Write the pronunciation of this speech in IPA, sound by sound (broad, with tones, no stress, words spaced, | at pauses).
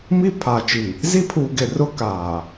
mi˦ pʰaː˨t͡ʃi˨ | zi˦pʰuː˨ɡɪ˨ rʊ˦kaː˨